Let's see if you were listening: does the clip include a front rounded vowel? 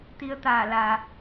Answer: no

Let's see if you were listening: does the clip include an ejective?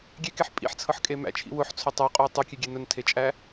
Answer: yes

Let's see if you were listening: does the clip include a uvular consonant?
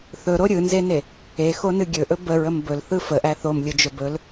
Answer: no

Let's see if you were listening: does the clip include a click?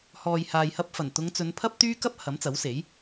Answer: no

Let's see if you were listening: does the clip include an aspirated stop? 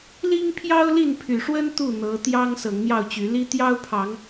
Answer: yes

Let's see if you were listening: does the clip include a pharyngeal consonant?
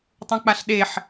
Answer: yes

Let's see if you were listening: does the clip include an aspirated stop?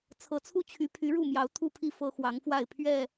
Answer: yes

